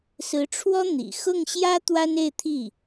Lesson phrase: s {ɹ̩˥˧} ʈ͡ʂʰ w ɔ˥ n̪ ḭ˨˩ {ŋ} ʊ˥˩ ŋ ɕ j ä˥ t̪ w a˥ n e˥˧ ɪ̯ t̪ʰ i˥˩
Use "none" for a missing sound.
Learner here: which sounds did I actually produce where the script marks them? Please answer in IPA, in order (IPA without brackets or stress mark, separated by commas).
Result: ɹ̩˧˥, x